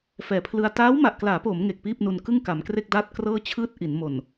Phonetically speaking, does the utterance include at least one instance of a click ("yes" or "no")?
no